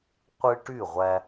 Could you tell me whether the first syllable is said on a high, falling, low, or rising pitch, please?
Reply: high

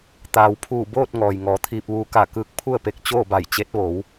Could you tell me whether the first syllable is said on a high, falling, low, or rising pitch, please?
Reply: low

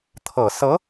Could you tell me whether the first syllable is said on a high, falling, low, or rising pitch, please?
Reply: low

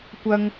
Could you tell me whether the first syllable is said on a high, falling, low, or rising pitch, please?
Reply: high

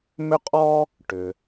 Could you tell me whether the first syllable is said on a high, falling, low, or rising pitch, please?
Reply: high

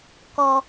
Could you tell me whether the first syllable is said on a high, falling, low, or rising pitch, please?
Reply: low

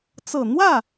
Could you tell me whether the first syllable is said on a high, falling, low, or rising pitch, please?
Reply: low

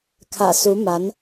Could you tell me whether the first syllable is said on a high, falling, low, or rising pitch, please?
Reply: low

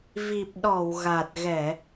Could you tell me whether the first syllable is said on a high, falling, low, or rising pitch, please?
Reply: low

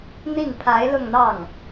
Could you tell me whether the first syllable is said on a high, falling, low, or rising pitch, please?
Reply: falling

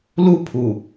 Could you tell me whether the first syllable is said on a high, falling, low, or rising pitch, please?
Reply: high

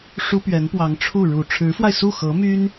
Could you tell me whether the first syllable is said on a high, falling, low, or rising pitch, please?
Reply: high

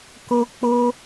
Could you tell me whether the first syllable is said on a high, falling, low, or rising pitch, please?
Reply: high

